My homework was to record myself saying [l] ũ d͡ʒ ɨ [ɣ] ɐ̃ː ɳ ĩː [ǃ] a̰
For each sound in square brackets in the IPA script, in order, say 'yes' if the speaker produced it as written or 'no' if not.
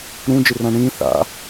no, no, no

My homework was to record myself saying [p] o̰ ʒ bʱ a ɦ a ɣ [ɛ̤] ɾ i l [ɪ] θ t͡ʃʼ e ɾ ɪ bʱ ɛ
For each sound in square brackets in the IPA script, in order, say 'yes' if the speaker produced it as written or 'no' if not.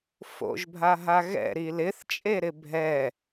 no, no, yes

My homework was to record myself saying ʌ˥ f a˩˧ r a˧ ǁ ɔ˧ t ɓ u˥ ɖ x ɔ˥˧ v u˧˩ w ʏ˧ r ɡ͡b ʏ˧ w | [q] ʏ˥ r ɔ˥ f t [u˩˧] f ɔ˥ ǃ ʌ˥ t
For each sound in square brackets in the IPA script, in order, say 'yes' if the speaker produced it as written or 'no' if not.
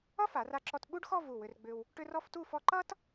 no, no

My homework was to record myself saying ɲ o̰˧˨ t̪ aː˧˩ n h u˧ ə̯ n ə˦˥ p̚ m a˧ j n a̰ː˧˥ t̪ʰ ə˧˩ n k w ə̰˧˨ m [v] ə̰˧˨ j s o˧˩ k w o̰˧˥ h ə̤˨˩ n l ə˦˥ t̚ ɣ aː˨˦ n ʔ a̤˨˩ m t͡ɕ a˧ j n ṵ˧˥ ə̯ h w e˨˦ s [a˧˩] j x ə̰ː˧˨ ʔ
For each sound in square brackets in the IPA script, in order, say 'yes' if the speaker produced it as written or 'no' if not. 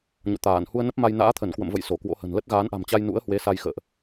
yes, no

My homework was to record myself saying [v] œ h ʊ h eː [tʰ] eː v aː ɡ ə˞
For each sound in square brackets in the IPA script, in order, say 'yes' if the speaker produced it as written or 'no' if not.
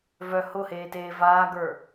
yes, no

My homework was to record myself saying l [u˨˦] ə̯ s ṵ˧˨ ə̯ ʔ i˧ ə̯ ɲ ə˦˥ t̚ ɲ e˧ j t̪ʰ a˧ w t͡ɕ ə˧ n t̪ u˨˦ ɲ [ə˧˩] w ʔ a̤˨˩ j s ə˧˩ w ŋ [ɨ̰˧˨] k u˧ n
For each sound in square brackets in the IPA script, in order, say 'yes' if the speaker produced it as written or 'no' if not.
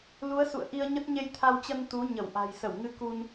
yes, yes, no

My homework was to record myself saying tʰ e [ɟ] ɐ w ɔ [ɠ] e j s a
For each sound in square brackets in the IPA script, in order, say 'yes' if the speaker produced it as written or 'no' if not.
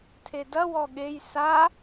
no, yes

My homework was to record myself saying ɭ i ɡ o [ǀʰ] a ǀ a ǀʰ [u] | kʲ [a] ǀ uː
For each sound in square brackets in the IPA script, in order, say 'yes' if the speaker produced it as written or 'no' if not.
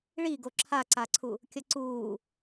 no, yes, no

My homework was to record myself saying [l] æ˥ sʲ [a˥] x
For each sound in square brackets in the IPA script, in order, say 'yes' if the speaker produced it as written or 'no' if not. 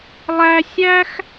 no, no

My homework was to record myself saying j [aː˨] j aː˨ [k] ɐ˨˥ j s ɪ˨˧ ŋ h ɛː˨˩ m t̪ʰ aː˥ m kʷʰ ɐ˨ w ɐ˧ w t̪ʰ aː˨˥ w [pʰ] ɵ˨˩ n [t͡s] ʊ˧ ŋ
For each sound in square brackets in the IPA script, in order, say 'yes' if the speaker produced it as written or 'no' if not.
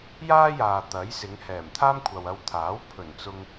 no, no, yes, yes

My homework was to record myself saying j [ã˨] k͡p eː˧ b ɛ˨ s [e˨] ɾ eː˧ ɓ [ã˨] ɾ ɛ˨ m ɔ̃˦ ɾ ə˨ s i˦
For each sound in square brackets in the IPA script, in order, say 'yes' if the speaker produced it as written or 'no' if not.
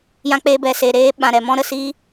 no, yes, yes

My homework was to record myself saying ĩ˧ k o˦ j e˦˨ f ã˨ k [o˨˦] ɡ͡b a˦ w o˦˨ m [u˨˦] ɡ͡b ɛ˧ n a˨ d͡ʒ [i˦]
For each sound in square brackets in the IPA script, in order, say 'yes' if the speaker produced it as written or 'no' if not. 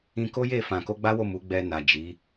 no, yes, no

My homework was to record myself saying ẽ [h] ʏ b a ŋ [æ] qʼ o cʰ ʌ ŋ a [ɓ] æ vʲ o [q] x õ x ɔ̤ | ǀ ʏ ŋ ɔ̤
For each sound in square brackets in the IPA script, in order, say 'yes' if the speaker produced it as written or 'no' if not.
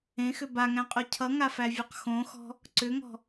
no, no, no, yes

